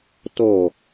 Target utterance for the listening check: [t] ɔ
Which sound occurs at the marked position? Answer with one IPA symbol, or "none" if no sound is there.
t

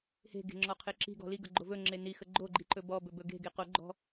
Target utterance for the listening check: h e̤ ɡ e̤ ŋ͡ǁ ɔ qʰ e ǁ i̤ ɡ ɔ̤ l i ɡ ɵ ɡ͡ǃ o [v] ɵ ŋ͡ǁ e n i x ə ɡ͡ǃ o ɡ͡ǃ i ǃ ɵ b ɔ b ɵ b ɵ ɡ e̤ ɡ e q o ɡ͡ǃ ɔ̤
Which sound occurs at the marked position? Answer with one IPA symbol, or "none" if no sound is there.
v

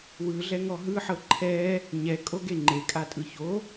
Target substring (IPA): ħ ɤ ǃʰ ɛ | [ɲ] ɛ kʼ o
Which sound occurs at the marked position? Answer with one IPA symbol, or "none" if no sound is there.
ɲ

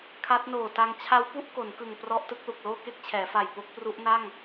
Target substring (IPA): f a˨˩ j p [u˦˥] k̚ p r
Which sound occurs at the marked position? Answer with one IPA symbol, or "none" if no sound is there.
o˦˥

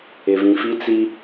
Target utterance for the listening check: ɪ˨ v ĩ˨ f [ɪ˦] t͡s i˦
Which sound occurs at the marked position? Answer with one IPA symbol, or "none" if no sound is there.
i˦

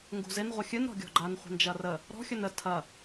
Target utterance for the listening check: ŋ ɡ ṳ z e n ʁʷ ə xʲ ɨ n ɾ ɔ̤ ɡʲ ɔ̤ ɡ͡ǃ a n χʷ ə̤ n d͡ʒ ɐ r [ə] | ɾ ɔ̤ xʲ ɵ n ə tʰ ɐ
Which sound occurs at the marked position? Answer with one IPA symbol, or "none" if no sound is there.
ə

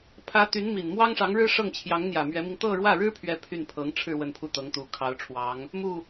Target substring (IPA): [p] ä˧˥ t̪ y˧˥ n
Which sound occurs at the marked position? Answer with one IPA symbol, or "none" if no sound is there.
pʰ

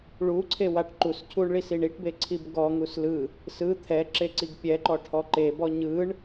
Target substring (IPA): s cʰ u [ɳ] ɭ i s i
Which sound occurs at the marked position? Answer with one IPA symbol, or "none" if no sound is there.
ɳ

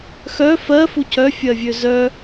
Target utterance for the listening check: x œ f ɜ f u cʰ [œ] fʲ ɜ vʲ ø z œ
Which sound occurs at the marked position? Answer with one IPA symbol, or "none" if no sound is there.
œ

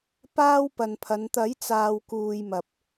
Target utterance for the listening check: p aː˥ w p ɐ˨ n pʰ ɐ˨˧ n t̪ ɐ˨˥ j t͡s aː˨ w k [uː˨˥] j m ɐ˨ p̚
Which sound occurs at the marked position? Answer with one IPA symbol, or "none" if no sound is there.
uː˨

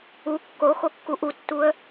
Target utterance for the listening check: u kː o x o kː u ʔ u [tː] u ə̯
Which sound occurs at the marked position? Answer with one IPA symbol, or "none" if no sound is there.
tː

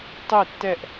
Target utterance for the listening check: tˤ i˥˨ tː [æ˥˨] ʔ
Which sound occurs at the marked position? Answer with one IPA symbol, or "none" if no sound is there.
ɛ˥˨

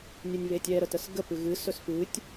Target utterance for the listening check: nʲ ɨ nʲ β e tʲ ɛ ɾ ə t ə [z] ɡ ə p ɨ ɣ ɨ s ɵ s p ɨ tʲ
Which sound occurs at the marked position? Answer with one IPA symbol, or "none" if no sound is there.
s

